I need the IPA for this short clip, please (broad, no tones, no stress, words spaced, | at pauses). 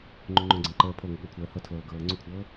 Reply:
ŋ͡ǃuŋ͡ǃõɡ͡ǀɛ̃ǃəː pʰoŋəɠʊːkʷʰɜː hɤtʰlɤːɡɤː ŋ͡ǀukʷʰɤː